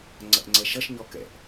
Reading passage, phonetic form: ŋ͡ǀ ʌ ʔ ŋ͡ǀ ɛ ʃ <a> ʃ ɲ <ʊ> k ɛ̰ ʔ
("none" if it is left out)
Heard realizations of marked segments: ʌ, ɔ

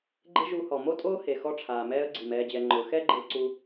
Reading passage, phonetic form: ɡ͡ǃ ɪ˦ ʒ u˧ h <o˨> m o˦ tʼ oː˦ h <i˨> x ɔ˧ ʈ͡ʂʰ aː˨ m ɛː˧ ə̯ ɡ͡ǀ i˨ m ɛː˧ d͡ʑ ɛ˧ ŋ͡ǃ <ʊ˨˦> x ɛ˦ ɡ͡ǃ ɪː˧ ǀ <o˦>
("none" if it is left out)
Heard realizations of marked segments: ɔ˨, e˨, ʊ˨˦, u˦

